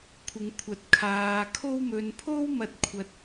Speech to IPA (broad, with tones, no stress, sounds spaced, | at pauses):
kʷʰ ɪ˨ ŋ kʷʰ ɐ˨ t̚ kʰ aː˨ kʰ o˧ w m ɵ˨ n pʰ o˥ w m ɐ˧ t̚ kʷʰ ɐ˧ t̚